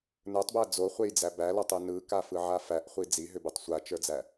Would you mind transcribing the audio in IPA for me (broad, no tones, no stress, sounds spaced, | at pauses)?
n ə˞ tˤ b æ d͡z o χʷ e j d͡z æ b æ l ɔ tˤ ɯ n ɯ k a f ɯ ʕ a f æ ʔ χʷ i d͡z i ɦ ʏ b ɯ tˤ sʷ a t͡ʃ ə˞ d͡z æ